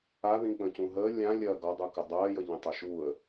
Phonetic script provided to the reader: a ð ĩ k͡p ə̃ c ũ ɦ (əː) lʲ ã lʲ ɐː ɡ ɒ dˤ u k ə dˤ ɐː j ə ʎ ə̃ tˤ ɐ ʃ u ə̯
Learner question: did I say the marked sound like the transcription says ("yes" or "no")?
yes